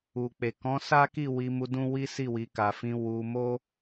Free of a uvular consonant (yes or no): yes